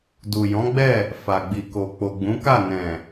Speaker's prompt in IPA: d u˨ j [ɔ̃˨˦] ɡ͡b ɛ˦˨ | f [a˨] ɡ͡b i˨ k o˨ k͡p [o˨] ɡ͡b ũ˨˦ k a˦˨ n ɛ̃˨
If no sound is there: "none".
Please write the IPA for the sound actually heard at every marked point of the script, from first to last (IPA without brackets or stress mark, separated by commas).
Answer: ɔ̃˨˦, a˨, o˨